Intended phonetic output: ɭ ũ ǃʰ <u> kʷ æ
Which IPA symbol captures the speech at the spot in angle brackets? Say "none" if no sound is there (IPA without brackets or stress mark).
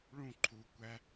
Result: u